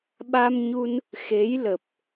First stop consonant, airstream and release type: implosive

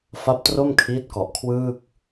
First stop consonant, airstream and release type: plain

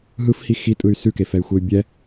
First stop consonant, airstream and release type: ejective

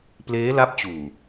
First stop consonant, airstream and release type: plain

